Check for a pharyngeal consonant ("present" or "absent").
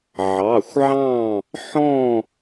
present